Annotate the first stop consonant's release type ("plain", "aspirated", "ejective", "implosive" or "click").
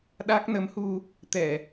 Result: implosive